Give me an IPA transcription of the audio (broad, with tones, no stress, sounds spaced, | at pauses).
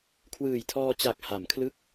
kʰ w ɯː˨˩ j tʰ ɔː˧ t͡ɕ a˨˩ k̚ h a˩˦ m kʰ l ɯ˦˥ k̚